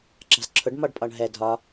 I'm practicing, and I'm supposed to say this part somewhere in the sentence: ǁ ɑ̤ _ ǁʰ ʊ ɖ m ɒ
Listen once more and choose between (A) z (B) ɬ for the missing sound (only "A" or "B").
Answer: A